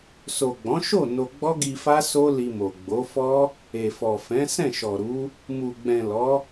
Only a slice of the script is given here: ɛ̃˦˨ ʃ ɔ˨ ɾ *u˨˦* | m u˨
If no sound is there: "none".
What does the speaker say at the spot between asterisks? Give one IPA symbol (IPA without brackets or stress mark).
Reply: u˨˦